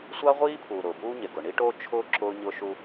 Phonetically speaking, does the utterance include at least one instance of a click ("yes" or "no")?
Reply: yes